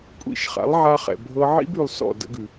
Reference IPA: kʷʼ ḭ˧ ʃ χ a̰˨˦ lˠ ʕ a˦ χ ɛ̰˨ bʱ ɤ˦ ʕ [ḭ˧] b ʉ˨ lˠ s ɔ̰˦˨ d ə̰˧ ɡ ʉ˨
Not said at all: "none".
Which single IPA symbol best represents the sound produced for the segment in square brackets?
ḭ˦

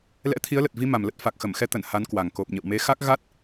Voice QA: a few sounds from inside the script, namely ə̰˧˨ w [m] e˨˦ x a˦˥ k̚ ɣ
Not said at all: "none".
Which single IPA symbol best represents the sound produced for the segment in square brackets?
m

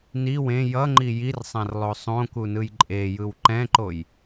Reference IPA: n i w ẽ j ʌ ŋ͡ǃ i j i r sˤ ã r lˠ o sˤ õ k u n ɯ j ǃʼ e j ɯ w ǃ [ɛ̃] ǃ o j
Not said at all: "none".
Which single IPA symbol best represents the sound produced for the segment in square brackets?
ɛ̃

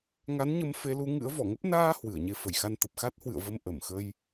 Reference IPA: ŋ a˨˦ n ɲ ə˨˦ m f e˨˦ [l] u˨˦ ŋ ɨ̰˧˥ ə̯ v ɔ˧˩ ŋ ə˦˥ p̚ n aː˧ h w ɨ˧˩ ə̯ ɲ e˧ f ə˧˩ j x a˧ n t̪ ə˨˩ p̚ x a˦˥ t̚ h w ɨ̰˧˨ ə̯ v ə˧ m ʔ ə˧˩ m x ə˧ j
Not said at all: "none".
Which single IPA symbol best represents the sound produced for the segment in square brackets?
l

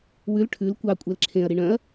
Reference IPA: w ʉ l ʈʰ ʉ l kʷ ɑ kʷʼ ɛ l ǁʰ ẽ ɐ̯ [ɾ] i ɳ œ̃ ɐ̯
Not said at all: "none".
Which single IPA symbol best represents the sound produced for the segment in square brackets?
ɾ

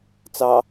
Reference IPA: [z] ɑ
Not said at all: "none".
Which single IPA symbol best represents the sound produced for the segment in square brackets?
t͡s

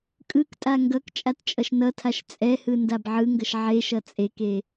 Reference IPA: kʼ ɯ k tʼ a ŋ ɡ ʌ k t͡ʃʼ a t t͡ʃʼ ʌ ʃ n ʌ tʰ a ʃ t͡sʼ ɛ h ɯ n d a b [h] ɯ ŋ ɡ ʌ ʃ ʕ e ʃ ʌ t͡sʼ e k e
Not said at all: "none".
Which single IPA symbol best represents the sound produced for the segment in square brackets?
ʕ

